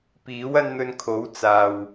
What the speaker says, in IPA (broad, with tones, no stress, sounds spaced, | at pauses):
p iː˨˥ w ɐ˥ n n̪ ɵ˧ n kʰ o˨˥ w t͡s aː˨ w